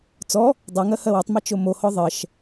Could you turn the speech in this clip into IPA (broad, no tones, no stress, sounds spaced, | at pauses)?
t͡s ɔ | dˤ ɘ ŋ ɜ h ɜ w ɪ tˤ m ɛ t͡ʃ o m o h ɔ ðˤ ɜ ʃ